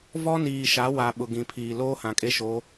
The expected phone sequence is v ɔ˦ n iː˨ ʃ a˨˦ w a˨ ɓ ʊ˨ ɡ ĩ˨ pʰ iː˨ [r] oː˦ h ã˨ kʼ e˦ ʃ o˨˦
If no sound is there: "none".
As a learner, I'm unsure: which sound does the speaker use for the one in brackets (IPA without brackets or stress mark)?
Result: l